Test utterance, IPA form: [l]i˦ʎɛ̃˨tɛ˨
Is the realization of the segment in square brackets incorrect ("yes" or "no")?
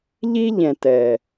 yes